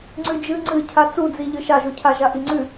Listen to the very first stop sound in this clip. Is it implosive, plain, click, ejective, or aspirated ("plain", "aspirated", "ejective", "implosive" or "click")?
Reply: click